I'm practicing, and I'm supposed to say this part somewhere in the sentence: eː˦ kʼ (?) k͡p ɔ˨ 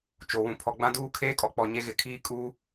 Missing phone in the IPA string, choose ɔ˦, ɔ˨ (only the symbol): ɔ˨